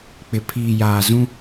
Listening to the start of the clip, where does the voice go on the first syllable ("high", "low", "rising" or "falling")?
low